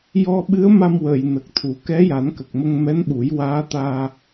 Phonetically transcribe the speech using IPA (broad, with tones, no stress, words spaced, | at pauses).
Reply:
jɔ˧ɓɨ˧˥ə̯ma˧mwəː˨˩˨j nə˨˩k̚t̪ʰu˨˩˦ kɛ˧˥ja˨˩˦nkə˨˩k̚ mə˧ŋmɛ˧˥nɓu˨˩˦j waː˧˥t̪aː˧